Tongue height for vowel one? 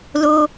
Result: mid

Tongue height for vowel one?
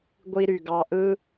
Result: high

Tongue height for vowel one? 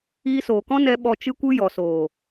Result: high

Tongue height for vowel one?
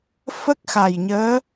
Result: mid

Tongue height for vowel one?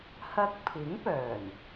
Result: low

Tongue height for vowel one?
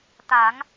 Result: low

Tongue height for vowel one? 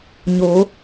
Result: mid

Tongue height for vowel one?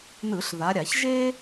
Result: high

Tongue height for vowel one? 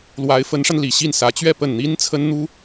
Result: low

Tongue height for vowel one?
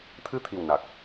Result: high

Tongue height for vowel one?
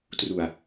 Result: high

